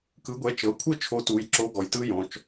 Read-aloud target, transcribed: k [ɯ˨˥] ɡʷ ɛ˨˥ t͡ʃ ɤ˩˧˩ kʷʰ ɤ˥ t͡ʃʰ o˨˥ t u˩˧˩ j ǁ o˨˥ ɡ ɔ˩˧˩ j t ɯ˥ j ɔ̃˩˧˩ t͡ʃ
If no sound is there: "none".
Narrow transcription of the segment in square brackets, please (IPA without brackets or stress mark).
ɯ˨˥